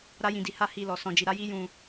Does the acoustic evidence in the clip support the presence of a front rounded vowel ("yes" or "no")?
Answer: no